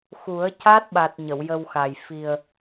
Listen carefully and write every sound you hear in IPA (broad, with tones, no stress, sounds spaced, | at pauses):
x u˨˩˦ ə̯ c a˦˥ t̚ ɓ a˨˩ t̚ ɲ ə˨˩˨ w j ə˧ w x a˨˩ j f i˨˩ ə̯